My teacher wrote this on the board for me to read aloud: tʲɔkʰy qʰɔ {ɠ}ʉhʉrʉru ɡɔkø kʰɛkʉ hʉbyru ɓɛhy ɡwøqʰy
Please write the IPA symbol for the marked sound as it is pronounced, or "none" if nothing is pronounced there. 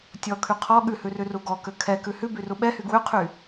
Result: ɠ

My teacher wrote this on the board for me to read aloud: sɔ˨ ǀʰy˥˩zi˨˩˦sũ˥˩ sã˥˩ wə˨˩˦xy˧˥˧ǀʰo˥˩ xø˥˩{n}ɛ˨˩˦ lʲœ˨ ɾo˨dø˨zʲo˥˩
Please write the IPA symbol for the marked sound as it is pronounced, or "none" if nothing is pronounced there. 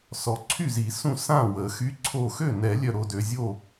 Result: n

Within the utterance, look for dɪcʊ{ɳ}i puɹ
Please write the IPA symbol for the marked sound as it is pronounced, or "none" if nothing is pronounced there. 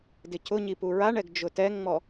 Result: ɲ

